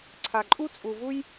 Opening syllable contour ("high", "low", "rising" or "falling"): low